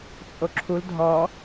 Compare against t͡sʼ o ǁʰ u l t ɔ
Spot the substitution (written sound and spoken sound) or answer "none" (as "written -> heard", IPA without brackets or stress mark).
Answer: t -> dʱ